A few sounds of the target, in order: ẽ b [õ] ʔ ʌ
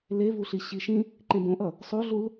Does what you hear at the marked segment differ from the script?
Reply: no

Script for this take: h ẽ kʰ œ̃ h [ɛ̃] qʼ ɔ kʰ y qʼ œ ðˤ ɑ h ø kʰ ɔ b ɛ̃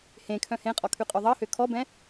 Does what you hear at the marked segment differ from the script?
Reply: yes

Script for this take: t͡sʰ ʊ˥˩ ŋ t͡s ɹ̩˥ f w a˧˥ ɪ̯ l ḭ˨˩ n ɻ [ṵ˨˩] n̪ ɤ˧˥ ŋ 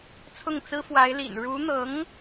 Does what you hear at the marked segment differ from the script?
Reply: yes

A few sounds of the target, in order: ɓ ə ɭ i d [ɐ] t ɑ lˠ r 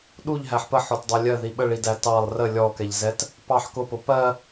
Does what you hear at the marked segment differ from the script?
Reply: yes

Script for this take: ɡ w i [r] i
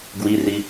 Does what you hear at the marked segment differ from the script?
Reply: no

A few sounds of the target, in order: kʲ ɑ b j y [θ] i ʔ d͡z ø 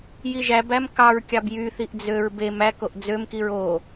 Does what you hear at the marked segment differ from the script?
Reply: no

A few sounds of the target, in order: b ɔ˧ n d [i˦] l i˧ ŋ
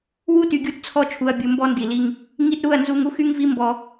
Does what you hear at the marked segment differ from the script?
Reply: yes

